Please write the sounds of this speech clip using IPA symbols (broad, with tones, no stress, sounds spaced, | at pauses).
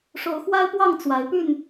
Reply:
ʂ o˨˦ ʊ̯ x w a˦ ɪ̯ p w ɑ˥˨ ŋ t͡s w a˨˦ ɪ̯ p y˥˨ n